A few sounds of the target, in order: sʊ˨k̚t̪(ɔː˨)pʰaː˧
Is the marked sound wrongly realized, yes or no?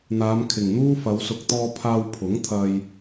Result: yes